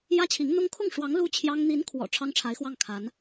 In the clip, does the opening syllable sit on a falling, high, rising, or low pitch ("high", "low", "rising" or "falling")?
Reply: high